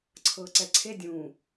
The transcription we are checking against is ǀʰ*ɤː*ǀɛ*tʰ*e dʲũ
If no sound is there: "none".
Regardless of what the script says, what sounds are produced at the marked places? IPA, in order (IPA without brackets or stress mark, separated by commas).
ɤː, ǀʰ